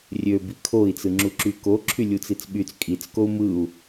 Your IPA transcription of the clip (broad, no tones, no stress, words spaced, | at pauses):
rʲø bikʰoi̯ t͡sɯŋ͡ǁuǁyko ǁʰylʲut͡sit͡sɓyt͡s kʼit͡skou̯ mɯu̯